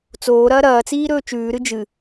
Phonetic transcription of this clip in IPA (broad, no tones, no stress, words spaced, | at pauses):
t͡soːɾɐː ɾɐːt͡siː ɾɵːt͡ʃʉːɾɨ d͡ʒɨ